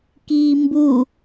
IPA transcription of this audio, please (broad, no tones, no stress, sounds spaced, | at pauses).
k iː m b u